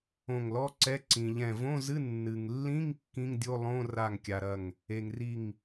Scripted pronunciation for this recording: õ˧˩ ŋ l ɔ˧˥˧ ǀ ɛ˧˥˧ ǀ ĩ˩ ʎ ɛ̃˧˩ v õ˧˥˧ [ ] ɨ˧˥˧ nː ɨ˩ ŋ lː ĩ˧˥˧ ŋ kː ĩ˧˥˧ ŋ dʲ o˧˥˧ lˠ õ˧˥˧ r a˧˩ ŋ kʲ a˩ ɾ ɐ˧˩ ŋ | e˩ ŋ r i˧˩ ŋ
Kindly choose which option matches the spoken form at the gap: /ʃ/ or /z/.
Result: z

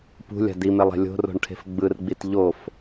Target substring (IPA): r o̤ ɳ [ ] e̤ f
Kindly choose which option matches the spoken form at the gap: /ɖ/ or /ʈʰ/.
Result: ʈʰ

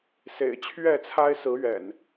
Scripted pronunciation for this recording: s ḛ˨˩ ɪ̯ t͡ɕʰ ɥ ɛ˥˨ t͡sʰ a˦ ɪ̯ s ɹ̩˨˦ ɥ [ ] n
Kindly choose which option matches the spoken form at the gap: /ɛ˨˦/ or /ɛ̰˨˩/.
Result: ɛ̰˨˩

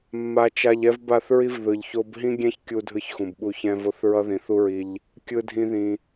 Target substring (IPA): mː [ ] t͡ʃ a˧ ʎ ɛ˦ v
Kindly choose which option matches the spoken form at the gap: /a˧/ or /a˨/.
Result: a˧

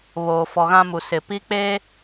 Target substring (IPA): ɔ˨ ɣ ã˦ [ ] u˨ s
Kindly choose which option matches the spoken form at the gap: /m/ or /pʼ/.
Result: m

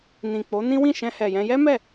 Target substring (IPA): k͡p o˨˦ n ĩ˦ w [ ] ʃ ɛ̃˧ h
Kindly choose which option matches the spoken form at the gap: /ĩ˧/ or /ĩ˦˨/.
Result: ĩ˦˨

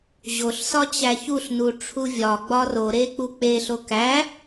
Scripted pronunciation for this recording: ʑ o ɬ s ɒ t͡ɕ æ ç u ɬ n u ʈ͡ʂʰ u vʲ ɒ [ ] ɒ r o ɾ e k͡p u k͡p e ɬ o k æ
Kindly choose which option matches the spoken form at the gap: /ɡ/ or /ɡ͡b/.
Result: ɡ͡b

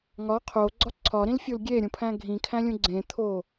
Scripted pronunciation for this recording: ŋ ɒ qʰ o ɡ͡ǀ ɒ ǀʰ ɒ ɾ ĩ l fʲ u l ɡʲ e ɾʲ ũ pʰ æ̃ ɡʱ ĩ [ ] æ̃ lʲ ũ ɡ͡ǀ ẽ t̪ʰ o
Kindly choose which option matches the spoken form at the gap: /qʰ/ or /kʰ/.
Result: kʰ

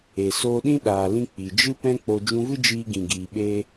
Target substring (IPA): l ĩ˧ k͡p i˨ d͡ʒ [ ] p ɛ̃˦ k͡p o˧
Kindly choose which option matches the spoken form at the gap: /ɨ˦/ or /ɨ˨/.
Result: ɨ˦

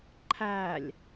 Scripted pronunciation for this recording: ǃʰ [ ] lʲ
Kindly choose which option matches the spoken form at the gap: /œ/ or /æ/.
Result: æ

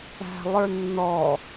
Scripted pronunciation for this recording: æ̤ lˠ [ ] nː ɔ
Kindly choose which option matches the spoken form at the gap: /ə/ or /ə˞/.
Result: ə˞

